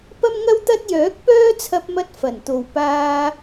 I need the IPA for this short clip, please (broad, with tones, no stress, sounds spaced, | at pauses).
p ɐ˥ m ŋ ɐ˥ w t̪ ɐ˥ t̚ j œː˨˥ k̚ p œː˥ t͡sʰ ɐ˧ p̚ m ɐ˧ t̚ f ɐ˨˩ n t̪ o˨ w p aː˧